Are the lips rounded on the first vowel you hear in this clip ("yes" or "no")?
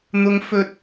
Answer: yes